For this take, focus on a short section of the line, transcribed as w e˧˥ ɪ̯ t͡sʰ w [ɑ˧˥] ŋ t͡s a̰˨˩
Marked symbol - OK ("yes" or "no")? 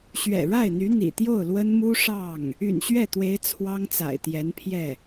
no